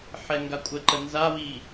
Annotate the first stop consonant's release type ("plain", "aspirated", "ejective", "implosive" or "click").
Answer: plain